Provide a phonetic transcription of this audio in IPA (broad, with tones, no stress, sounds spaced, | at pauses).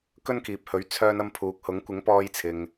k ɵ˥ n k iː˨ p̚ h ɵ˨˥ ɥ t͡sʰ œː˧ n ɐ˧ m pʰ uː˨ k̚ h ʊ˨˥ ŋ kʷ ɪ˨˥ ŋ p ɔː˧ j t͡sʰ ɪ˨ ŋ